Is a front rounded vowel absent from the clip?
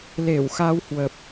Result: yes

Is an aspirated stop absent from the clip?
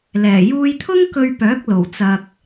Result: no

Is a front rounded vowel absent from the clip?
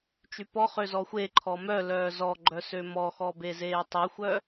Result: no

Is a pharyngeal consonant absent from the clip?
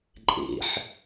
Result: no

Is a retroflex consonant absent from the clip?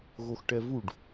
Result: no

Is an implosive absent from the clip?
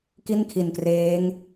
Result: yes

